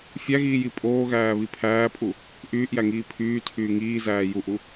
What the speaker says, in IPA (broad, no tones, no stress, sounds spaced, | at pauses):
fʲ æ ɣ iː j i pʼ oː ɣ æː β i pʰ æː pʼ u | ʔ yː ʔ j æ ŋ iː pʰ yː tʰ yː ŋ iː z æː j u ʔ u